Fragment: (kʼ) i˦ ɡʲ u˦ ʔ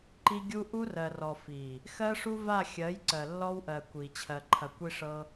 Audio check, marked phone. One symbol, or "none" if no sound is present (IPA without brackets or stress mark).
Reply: ǃ